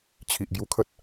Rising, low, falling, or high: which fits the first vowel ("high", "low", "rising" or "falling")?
low